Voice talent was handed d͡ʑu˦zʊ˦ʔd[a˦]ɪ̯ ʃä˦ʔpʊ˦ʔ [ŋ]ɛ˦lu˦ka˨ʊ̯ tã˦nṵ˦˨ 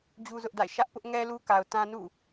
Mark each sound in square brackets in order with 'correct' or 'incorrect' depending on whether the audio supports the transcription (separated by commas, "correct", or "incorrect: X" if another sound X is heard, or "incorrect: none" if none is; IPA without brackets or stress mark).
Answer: incorrect: a̰˦˨, correct